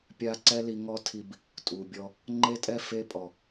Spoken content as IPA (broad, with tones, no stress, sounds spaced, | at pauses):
pʲ a˦ ǀ ɛ˦ l i˧ ŋ ɔ˦ tʰ i˧ b | tʼ u˨ bʲ ɔ˧ | ŋ͡ǃ e˦ tʼ ɛ˦ f e˧ pʼ ɔ˨